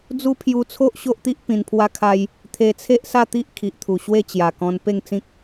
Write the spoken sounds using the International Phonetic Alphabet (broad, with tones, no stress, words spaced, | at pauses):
d͡zu˦pʰju˧t͡sʰo˦ʔ ɕo˦ʔt̪i˦ʔ pĩ˧n pʰwa˦kʰa˦j | t̪ʰe˧t͡sʰe˦ʔsa˥˧t̪i˦ʔ kʰi˨ʔt̪ʰu˨˩ɕwe˥˧ t͡ɕja˨˩kɔ̃˧n pe˥˧ŋt͡sĩ˦k̚